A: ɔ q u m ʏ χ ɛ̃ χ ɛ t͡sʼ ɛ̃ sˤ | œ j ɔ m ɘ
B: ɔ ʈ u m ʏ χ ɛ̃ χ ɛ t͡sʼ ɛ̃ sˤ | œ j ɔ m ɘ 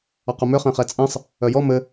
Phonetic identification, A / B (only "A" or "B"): A